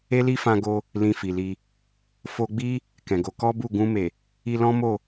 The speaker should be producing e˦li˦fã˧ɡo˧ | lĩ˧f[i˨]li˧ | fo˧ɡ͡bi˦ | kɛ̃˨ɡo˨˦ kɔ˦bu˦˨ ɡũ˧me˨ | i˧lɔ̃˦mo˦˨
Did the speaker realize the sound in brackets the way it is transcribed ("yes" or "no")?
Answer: yes